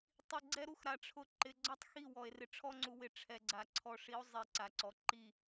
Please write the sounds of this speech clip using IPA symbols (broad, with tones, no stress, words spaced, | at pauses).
tˤi˨ɡ͡ǀɛ˦ɾu˦xɾa˨ ʈ͡ʂʰʊ˨ǃɪ˨ɡ͡ǀɔ˦tˤxi˦˨ wɔ˨e̯rɪ˦ ʈ͡ʂʰɔ˦ŋ͡ǀu˨wɪ˨ ʈ͡ʂʰɛ˨ɡ͡ǀa˨ ǀʰɔ˨ʂi˨˦o̯ zˤi˨ ǀa˨ǀɔ˨ ǃi˦˨